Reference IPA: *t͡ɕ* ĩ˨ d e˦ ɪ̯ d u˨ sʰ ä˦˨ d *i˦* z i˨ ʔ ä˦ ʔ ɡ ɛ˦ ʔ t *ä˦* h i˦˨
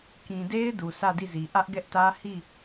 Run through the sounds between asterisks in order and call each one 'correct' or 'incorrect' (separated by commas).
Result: incorrect, incorrect, correct